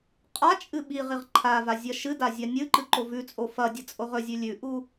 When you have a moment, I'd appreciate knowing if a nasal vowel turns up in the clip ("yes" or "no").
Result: no